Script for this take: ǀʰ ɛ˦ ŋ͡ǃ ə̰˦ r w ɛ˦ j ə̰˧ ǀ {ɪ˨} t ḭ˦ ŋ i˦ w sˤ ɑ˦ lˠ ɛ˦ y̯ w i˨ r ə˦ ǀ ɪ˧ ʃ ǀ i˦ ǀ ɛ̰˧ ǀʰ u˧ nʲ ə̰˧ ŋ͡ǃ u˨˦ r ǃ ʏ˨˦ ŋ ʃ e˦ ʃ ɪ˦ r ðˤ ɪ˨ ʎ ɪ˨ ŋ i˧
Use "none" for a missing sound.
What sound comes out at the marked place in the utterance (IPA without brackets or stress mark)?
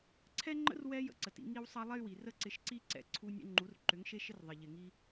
ə˨